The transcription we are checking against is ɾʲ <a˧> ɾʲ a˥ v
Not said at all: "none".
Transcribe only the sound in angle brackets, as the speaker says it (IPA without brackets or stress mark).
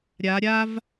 a˧˥